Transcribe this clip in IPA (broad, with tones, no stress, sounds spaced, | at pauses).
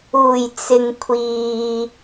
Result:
uː˨˩ j t͡s ɪ˨ ŋ kʷʰ iː˨